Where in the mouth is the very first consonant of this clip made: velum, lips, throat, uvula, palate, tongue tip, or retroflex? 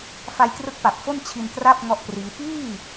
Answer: lips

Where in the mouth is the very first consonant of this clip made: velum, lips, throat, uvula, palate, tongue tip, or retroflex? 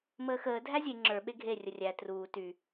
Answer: lips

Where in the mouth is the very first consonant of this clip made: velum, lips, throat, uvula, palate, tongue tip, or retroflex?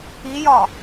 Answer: palate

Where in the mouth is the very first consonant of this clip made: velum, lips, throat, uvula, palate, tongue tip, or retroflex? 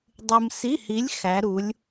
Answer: tongue tip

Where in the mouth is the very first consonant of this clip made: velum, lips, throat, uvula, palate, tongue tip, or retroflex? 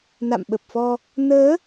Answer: tongue tip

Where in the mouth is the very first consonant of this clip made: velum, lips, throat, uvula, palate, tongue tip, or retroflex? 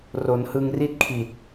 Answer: tongue tip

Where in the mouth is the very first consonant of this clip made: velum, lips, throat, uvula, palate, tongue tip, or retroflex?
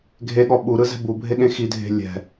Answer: velum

